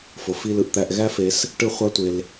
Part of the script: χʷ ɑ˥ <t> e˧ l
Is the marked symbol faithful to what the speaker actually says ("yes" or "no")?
no